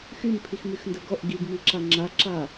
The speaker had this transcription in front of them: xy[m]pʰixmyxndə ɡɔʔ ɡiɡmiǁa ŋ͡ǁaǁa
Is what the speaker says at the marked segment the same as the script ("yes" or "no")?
yes